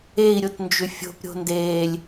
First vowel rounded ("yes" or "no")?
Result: no